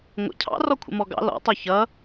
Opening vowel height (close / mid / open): mid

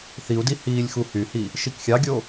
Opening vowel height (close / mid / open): close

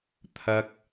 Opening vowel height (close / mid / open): open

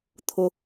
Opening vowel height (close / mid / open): close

